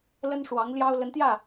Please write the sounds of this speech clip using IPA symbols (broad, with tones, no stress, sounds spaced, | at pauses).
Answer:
l ə˥ n ʂ w ɑ˧˥ ŋ l j ɑ˥ ʊ̯ l ə˧˥ n t̪ j ä˥˩